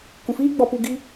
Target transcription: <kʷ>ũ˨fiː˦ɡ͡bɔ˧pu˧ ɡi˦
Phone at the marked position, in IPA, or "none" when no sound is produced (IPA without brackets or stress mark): kʷ